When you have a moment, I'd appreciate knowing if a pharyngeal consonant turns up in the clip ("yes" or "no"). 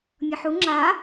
yes